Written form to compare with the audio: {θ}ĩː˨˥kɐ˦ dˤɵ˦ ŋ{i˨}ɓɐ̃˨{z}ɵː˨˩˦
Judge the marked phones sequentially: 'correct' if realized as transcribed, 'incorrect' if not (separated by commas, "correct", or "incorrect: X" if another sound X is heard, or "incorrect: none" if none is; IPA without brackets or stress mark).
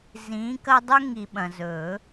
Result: incorrect: z, correct, correct